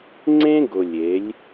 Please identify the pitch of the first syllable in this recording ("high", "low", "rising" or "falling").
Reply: high